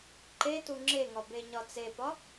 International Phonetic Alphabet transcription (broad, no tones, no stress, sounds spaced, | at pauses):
ǃ e t u ŋ͡ǁ e ŋ ɒ b e ɲ ɒ t͡s e p ɒ